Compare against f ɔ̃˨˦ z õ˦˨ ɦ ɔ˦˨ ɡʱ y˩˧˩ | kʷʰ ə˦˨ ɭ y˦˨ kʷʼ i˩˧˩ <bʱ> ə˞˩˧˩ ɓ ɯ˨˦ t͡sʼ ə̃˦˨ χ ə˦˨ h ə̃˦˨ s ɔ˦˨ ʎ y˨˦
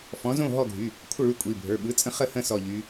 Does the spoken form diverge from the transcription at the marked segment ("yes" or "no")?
no